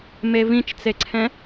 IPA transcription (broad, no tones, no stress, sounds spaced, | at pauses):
m e v ĩ t͡ʃ t͡s e ǀʰ ɛ̃